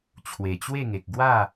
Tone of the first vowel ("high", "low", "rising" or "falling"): low